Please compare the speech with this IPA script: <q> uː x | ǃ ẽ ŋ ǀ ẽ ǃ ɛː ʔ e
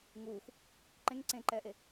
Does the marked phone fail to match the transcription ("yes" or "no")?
yes